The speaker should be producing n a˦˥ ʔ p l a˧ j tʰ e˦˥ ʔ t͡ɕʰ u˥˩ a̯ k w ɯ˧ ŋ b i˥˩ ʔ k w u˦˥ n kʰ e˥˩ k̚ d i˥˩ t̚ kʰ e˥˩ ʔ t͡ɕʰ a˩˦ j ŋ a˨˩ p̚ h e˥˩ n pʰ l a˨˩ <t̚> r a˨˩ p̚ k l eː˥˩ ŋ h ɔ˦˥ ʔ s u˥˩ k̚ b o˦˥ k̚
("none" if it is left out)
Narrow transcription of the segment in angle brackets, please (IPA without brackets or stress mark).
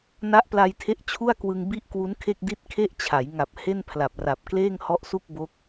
p̚